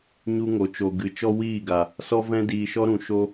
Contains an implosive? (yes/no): no